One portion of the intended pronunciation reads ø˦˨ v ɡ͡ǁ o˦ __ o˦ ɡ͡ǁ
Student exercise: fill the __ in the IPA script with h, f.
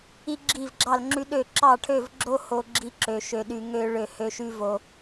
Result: h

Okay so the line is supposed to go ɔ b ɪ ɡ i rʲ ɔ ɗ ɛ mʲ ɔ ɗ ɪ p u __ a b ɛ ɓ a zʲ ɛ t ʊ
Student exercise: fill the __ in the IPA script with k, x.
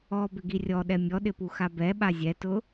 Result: x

